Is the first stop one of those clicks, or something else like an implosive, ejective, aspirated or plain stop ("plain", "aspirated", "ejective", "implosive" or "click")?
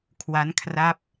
aspirated